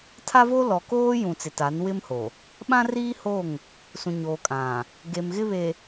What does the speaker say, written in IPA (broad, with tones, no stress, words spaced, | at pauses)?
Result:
tʰa˦vo˦ lɔ˨koː˦jũ˨ t͡sɪ˨ta˨˦nwɪ˦mho˨ | ɓã˦riː˦ho˦˨ŋ | sũ˨ɲoː˨kʼã˨ | ɡe˨mɣɪ˦ βe˨